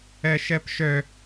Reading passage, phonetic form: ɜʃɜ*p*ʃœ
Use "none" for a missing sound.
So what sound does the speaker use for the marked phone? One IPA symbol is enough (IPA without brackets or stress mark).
p